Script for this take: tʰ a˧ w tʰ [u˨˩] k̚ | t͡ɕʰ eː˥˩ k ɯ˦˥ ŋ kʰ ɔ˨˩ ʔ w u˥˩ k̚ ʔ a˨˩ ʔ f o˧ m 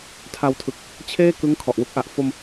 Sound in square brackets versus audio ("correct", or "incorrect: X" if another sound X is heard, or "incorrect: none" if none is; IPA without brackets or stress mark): incorrect: ɯ˨˩